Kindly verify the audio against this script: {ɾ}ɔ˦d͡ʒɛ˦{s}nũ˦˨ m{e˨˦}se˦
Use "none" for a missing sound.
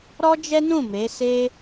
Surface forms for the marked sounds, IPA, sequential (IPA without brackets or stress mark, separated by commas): ɾ, none, e˨˦